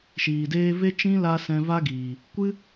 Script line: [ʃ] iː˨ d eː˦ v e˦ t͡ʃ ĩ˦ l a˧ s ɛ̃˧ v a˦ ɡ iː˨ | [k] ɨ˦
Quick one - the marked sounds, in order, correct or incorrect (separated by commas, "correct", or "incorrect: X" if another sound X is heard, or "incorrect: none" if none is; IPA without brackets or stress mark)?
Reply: correct, incorrect: kʷ